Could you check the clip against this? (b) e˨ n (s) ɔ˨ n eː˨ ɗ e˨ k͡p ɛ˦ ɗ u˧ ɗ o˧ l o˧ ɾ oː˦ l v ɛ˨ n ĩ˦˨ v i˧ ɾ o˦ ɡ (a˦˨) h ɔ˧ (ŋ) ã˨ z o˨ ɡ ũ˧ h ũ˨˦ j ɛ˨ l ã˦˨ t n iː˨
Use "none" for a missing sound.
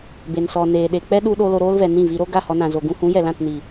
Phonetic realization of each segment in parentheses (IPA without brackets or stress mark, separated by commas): b, s, a˦˨, n